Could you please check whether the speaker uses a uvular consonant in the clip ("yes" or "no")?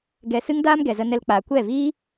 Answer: no